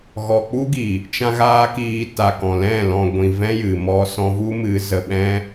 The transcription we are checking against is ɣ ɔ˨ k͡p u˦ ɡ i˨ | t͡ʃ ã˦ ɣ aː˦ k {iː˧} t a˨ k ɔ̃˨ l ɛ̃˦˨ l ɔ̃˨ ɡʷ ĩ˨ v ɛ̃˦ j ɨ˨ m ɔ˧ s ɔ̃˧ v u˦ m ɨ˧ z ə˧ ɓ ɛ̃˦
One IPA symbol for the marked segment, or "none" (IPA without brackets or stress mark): iː˧